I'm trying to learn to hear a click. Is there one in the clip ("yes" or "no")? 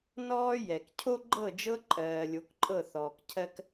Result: yes